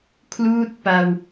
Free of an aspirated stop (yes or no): no